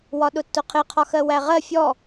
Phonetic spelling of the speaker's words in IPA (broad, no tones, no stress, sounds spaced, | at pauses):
w ɒ ɗ ʊ tː ʊ qʰ ɪ qʰ ɒ x ɜ w æ ʁ ɜ fʲ ɔ